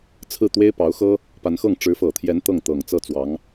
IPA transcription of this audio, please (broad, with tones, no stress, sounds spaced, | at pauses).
t͡sʰ ɹ̩˥˩ t̪ w e˥ ɪ̯ p ɑ˧˥ ʊ̯ x ɤ˥ | p a˧˥ n x ɤ˥˩ ŋ ʈ͡ʂ ɻ̩˧˥ f ɤ˨˩ t̪ʰ j ɛ˧˥ n t̪ ɤ˥˩ ŋ t̪ ɤ˨˩ ŋ t͡s ɤ˥˩ t͡s w ɑ˧˥ ŋ